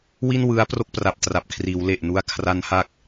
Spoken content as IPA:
wi˥˩nwɯ˦˥a̯ pro˥˩k̚pra˨˩p̚ tra˨˩p̚kʰriː˩˦w le˨˩ʔnu˦˥a̯ kʰra˦˥nha˦˥k̚

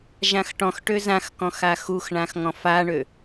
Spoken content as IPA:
ʒãxʈɔ̃xʈø zãxkɔ̃x axuxɳãx ŋɔ̃faɳø

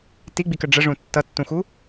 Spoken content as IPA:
tiɡ͡bikə ɖ͡ʐəʐũ tːʌtːũxu

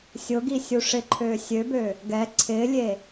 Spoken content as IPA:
sʲʊɡi sʲuʂɪǃʰøː sʲøbø | ɡɛ ǀʰɪːlʲe

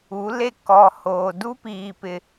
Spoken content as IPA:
u˨˦le˦˨ kɔ˨ hoː˨ du˦piː˨pɪ˨

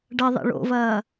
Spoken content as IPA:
ɖɐ ðˤḭɭo̰vɐː

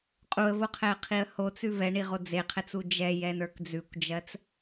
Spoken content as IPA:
qʼuə̯voqʰɛə̯qʰiə̯ hot͡sʉ vɛɳiʁo d͡zeqʰɛt͡su d͡ʒɛjɛnə˞k d͡zʉkʷd͡ʒɜt͡s

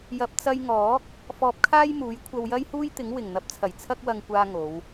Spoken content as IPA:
jɐ˨p̚t͡sɐ˧jŋɔː˨˥k̚ | fɔː˧p̚kʰaː˥jmuː˨˥j kʷʰɐ˧wjɐ˥jhuː˥jt̪ɪ˨˥ŋ wɪ˨˩ŋn̪ɐ˨˥p̚t͡sʰɐ˨˩j t͡sʰɐ˥k̚wɐ˧ŋkʷaː˧ ŋo˨˧w

